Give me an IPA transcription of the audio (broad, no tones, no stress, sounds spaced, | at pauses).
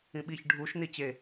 ĩ ɓ i ç ɖʱ u ʃ n i t͡ɕ e